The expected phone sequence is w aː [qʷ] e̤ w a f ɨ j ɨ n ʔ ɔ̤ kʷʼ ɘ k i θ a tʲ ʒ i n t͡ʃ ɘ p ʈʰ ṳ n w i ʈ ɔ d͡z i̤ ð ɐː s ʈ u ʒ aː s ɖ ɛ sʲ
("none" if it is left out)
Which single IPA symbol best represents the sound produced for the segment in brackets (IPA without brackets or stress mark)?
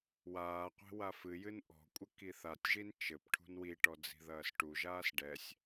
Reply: qʷ